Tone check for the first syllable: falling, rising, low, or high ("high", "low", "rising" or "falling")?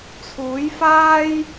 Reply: rising